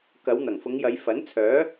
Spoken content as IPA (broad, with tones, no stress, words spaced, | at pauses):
kɐ˨˧w n̪ɐ˨˩ŋfʊ˨˧ŋjɐ˨˧j fɐ˨˥nt͡sʰœː˨˥